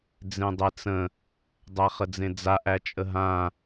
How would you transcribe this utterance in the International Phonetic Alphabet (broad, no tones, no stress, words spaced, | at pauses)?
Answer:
d͡zẽdˤet͡sə̃ | dˤæχəd͡zẽd͡za ʔæt͡ʃʼəɦã